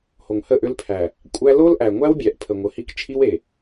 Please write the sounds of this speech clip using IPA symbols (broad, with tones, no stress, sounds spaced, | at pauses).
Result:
h o˨ ŋ h ə˦˨ ʔ ʏ˦ l pʰ æ˨ | kʷʼ æ˦ l o˦ l ʔ æ˨ ŋʷ æ˦ w bʲ æ˨ ʔ pʰ ə˨ ŋʷ ə˨ h i˦ k t͡ʃʰ i˦ w e˨